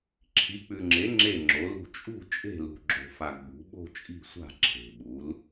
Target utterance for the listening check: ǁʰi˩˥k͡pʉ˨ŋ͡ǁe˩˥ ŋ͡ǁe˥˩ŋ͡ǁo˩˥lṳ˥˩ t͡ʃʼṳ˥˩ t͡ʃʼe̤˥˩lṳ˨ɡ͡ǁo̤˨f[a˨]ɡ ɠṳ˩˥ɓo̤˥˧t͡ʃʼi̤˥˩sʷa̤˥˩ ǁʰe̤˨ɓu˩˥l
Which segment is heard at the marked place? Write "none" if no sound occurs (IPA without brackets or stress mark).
a˨